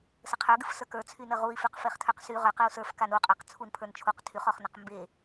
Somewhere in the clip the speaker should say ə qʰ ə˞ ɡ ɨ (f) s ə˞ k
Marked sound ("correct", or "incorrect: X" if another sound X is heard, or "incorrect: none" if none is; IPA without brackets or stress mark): correct